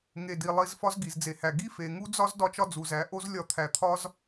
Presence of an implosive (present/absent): absent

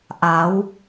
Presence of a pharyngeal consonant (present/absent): absent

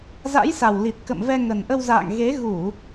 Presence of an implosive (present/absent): absent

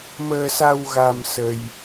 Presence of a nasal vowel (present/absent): absent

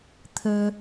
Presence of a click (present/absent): absent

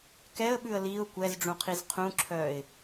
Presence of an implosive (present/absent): present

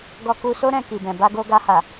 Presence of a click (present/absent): absent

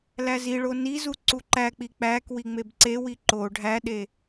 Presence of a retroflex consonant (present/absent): present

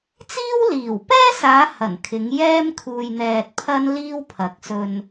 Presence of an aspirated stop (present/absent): present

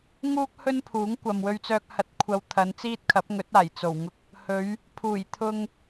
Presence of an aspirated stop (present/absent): present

